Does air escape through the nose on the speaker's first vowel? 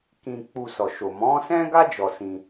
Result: yes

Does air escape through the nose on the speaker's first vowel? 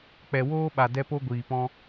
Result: no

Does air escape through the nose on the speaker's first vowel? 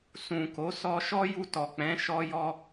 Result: yes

